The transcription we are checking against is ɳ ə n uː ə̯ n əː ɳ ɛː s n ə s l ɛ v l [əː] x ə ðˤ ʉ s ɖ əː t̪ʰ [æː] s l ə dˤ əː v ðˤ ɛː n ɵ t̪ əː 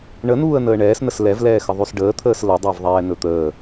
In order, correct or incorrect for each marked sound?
incorrect, incorrect

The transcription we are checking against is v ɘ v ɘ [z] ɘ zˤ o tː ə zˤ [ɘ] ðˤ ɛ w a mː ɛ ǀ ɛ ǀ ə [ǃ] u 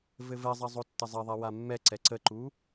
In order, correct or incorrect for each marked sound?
incorrect, correct, correct

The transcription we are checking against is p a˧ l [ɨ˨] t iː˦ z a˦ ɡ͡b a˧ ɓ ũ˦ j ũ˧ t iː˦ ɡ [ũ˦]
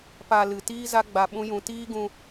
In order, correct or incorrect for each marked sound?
correct, incorrect

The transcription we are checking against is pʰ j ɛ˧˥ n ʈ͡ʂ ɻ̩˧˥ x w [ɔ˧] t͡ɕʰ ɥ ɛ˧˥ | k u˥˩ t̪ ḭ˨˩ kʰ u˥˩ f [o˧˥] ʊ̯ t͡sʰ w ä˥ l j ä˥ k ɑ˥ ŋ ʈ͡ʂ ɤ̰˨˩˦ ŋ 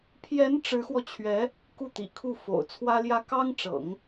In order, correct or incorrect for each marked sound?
correct, incorrect

